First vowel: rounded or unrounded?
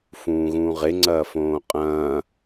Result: rounded